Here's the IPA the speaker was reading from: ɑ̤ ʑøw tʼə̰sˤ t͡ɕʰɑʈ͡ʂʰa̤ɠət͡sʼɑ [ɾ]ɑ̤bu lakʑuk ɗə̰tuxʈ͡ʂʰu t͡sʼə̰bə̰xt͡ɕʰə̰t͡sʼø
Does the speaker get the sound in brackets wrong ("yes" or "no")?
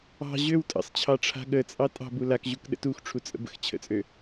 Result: yes